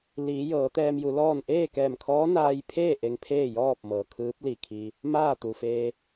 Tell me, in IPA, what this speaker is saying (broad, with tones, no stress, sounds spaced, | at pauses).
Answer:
l iː˩˧ j ɤː˩˧ t̪ ɛː˧ m j u˩˧ l ɔː˥˨ n ʔ eː˥˨ k ɛː˧˩ m kʰ ɔː˧˥ n aː˧ j pʰ eː˥˨ ʔ e˧ ŋ pʰ eː˥˨ j ɔː˥˨ p̚ m ɤː˩ kʰ ɯː˧˥ p̚ l i˧˩ kʰ i˧ | m aː˥˨ t̪ u˩ f eː˧